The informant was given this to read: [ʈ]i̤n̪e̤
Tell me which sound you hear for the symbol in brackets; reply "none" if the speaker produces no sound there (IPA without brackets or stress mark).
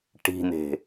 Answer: ʈ